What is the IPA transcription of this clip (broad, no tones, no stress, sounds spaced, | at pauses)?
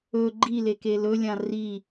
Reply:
ɵ ɡ͡ǃ i l e k e l ɵ lʲ ã r i